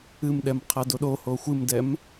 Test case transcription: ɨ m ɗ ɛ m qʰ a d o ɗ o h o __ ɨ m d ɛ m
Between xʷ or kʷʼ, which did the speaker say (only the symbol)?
xʷ